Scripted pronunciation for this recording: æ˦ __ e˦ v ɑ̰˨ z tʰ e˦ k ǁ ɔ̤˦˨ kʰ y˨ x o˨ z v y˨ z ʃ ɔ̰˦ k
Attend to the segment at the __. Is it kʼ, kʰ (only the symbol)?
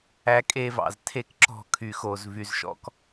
kʼ